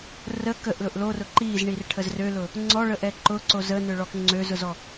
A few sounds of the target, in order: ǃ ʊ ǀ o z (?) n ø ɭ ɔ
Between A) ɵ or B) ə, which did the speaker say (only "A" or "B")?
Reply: B